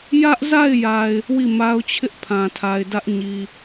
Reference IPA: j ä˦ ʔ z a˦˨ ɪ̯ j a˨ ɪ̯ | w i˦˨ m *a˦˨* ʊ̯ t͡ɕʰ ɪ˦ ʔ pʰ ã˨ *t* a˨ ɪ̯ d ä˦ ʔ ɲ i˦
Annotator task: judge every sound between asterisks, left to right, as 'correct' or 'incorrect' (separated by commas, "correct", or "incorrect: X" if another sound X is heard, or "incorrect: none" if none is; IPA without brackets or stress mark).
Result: incorrect: a˦, incorrect: tʰ